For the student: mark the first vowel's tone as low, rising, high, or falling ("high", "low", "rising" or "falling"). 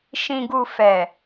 low